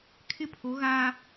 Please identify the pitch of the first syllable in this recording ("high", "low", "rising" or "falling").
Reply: falling